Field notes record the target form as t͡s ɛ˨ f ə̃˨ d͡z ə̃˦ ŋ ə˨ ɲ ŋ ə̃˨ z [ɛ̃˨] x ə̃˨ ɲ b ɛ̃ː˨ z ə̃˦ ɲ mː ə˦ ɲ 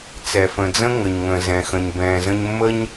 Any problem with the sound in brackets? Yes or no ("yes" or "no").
no